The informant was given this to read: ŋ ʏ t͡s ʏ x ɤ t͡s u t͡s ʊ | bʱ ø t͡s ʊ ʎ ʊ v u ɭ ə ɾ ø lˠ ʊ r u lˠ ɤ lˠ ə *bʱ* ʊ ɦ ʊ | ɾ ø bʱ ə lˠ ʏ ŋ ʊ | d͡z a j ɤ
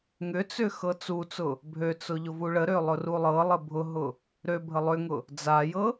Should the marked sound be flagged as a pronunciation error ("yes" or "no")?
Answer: no